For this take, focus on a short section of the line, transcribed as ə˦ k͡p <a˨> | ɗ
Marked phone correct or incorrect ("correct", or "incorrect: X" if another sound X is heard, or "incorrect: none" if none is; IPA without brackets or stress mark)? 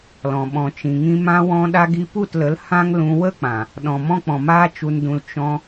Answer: incorrect: ã˨